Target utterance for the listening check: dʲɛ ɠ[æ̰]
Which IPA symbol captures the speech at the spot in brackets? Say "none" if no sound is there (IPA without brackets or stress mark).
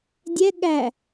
æ